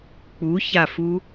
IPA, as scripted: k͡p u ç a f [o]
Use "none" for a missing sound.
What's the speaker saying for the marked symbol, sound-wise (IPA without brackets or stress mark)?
u